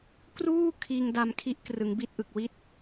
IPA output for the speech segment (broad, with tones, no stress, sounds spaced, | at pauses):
k r uː˥˩ kʰ iː˧ ŋ d a˧ m kʰ i˦˥ ʔ k r ɯ˩˦ ŋ b i˦˥ t̚ ʔ ɯ˨˩ k̚ w i˥˩ t̚